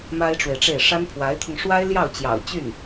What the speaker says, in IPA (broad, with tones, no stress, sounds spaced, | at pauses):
m a˥ ɪ̯ ʈ͡ʂ w e˨ ɪ̯ ʈ͡ʂ e˥˩ ɪ̯ ʂ a˥ n pʰ w a˧˥ ɪ̯ t̪ʰ ʊ˧ ŋ ʂ w a˥ ɪ̯ l j ɑ˥˩ ʊ̯ t͡ɕ j ɑ̰˨˩ ʊ̯ t͡ɕ y˥˩ n